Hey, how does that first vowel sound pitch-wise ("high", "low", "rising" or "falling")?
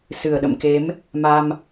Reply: low